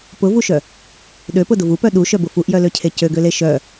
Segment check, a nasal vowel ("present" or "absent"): absent